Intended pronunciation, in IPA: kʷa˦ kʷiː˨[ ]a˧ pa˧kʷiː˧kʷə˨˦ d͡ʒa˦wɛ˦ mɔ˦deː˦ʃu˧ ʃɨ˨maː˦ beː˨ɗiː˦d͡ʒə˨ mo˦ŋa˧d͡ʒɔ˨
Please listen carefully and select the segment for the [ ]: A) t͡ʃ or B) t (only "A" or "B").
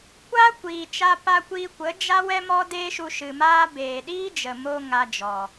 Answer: A